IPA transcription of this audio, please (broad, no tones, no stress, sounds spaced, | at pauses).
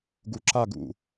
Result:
ɡ u ǁ a ɡ ṵ